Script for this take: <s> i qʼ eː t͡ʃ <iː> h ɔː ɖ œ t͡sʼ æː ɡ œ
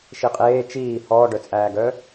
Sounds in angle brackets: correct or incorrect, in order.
incorrect: ʃ, correct

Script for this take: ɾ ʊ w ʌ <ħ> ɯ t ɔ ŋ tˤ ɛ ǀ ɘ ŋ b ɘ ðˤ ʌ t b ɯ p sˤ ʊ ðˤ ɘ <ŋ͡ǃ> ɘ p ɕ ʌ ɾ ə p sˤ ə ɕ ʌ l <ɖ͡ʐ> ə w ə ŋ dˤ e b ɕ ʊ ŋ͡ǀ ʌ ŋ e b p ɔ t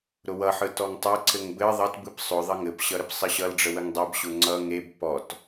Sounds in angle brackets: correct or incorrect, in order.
correct, incorrect: ŋ, correct

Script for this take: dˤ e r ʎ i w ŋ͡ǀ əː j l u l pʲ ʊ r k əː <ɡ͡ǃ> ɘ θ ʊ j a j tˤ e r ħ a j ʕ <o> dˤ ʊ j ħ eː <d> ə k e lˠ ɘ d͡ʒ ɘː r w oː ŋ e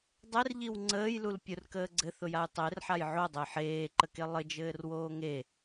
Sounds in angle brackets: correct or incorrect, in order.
incorrect: ɡ͡ǀ, correct, incorrect: ǃ

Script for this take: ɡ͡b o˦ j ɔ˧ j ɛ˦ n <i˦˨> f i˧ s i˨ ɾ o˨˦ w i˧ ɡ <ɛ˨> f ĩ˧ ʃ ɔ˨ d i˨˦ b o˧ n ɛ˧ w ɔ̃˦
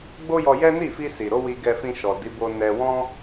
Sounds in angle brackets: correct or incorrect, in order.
correct, incorrect: ɛ˧

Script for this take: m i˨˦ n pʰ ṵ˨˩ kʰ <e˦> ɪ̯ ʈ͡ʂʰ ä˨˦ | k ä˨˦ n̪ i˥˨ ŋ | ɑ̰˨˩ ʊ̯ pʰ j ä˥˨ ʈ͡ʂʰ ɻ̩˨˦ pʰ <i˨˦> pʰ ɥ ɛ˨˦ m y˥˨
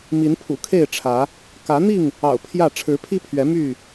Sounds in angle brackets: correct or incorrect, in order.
incorrect: e˥˨, incorrect: i˦

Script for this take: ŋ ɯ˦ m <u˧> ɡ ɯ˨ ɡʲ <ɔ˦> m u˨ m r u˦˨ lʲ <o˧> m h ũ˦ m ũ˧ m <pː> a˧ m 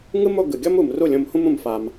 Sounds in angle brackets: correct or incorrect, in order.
incorrect: o˧, correct, incorrect: õ˧, incorrect: f

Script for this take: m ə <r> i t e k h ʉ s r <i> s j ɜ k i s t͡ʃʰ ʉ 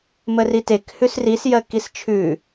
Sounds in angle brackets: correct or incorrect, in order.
correct, correct

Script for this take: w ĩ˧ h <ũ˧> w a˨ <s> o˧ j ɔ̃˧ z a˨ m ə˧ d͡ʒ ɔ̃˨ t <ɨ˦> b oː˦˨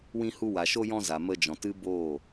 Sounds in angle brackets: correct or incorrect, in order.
incorrect: u˧, incorrect: ʃ, correct

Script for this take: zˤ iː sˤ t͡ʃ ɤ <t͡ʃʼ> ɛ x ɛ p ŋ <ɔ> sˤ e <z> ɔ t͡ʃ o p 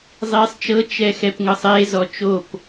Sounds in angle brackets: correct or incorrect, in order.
incorrect: t͡ʃ, incorrect: ɤ, correct

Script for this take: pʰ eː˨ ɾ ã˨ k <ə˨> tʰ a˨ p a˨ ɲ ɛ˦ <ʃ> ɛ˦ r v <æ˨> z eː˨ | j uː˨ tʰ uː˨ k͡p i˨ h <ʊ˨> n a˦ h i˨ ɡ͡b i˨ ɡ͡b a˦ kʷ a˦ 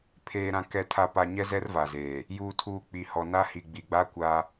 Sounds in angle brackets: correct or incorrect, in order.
incorrect: ɛ˨, incorrect: z, incorrect: a˨, incorrect: ɔ˨

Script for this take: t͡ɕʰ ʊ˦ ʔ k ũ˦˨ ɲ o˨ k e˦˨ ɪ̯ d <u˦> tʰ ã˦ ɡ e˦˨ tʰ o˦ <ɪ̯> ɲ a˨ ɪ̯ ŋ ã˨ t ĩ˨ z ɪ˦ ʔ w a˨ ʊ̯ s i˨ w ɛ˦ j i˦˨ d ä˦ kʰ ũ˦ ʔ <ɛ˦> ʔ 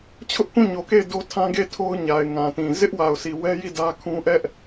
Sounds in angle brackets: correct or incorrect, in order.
incorrect: o˦, incorrect: ʊ̯, correct

